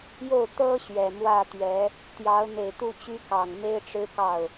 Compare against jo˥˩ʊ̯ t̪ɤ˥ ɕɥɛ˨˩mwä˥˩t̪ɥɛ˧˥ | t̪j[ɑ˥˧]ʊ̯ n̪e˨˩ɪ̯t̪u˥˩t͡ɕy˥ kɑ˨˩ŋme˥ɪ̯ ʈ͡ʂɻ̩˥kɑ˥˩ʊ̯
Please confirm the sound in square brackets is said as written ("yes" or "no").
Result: no